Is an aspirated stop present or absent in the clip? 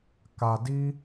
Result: absent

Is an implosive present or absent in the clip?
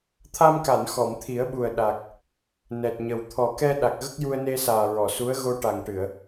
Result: present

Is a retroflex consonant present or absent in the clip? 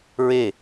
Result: absent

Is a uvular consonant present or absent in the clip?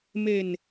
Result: absent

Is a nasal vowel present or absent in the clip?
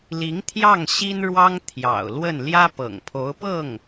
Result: absent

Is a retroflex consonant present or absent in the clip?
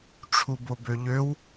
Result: present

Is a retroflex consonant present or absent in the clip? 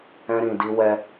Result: absent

